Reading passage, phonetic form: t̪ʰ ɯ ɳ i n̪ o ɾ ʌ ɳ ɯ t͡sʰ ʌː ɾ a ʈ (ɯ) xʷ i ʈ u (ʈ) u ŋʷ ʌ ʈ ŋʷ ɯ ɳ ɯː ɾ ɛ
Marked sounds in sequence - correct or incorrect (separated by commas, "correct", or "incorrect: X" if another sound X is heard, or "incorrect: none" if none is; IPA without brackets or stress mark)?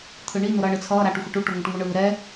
incorrect: u, correct